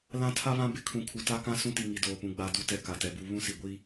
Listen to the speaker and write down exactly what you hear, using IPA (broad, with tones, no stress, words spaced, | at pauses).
lã˦ tʰa˦βã˦ bɪ˦ kʰũ˨kʰu˨ta˦kã˦ sũ˦ti˨ ŋi˨doː˨pũ˨ ɡ͡ba˨ du˦tɛ˨ ka˨tɛ˨bu˦ βũ˦si˨ɡʷi˦